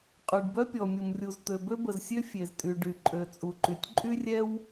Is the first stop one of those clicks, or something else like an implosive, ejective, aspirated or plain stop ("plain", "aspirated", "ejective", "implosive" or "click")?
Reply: ejective